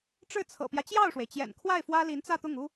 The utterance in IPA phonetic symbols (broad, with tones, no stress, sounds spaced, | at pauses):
ʈ͡ʂ ɻ̩˥˩ t͡sʰ ɤ̰˨˩ p j ä˦ t͡ɕ j ɑ˥˩ ʊ̯ ʂ w e˩ ɪ̯ t͡ɕ j ɛ̰˨˩ n kʰ w a˥˩ ɪ̯ f w ä˥ l i˧˥ n t͡s ä˥˧ t̪ ʊ˥˩ ŋ u˥